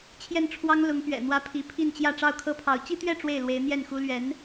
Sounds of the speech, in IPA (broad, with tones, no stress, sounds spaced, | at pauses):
t͡ɕʰ j ɛ˥˩ n ʈ͡ʂʰ w ɑ˥ ŋ l ʊ˧˥ ŋ p ɥ ɛ̰˨˩ n̪ w ä˥ pʰ i˧˥ pʰ i˥˧ n t͡ɕ j ä˥˧ ʈ͡ʂ ɑ˥˩ ʊ̯ kʰ ɤ˥ pʰ ɑ˧˥ ʊ̯ t͡ɕ i˥ t̪ ɥ ɛ˥˧ ʈ͡ʂ w e˥˩ ɪ̯ l w e˧˥ ɪ̯ n̪ j ɛ˥˩ n x u˥ l ɥ ɛ˧˥ n